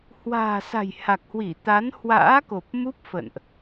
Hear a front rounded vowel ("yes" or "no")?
no